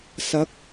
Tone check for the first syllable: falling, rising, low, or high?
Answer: rising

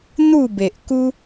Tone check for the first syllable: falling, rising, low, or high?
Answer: falling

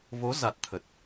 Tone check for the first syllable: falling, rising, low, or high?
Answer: rising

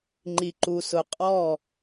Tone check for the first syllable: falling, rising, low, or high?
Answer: low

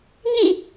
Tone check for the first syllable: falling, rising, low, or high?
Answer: falling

